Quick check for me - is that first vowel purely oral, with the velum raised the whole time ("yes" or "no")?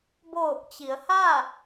yes